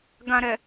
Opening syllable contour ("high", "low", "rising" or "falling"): low